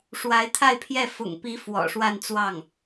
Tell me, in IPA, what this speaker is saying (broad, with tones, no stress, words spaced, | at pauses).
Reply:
ʂwa˧˥ɪ̯t̪ʰa˥˧ɪ̯pʰjɛ˥˩ fʊ̰˨˩ŋpi˧˥ fwɔ̰˨˩ʂwa˥˧nt͡swɑ˥˩ŋ